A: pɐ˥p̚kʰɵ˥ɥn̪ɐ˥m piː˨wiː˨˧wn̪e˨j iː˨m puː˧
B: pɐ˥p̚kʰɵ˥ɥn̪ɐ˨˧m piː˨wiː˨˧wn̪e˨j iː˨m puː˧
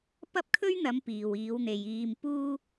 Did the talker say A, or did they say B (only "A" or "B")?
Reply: B